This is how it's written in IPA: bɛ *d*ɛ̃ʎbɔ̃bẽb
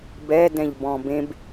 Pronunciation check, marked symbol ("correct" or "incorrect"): correct